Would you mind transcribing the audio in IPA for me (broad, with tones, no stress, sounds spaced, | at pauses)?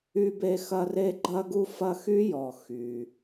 y˦ b e˦ x ɐ˦ r e˥ ɡ͡ǃ ɐ˥ ɡ u˥ f ɐ˦ x y˥ j ɔ˩ x y˩